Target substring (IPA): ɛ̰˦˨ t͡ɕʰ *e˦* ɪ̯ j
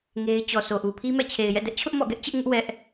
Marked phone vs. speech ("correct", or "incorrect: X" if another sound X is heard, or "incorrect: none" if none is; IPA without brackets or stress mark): incorrect: e˨